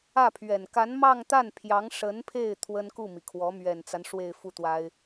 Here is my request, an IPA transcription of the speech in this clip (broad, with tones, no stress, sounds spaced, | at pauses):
ä˥˩ pʰ ɥ ɛ˨˩ n k a˧˥ n m ɑ˥˧ ŋ t̪ a˥˩ n pʰ j ɑ˧˥ ŋ ʂ ə˧˥ n pʰ e˥˩ ɪ̯ t̪ʰ w ə˥ n k u˥˩ m i˩ kʰ w ɔ˧˥ m ɥ ɛ˨˩ n t͡s a˦ n ʂ w e˥˧ ɪ̯ f u˥˩ t̪ w a˥ ɪ̯